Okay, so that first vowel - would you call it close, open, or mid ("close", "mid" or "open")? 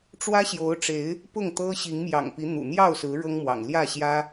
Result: open